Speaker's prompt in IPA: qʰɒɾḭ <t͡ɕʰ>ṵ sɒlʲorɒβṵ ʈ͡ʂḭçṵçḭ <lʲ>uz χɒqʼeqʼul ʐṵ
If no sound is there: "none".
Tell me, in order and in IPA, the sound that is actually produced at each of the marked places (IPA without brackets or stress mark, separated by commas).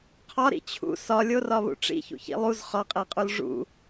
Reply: t͡ɕʰ, lˠ